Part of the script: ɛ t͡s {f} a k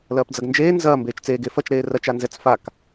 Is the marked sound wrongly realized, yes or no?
no